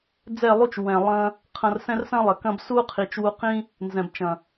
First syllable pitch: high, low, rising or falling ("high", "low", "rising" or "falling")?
falling